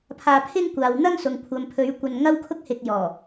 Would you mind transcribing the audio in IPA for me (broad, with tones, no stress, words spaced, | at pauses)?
pʰaː˧pʰɪ˥ŋkʷaː˨w n̪ɐ˥ŋsʊ˨ŋ kʷʰɐ˨mpʰɵ˨˧ɥ kʷɐ˧nŋɐ˥wkʰʊ˥k̚hɪ˧k̚ jɔː˨˩